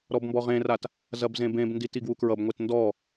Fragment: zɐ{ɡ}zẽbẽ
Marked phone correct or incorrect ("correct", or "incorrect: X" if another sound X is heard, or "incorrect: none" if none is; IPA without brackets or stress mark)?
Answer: incorrect: b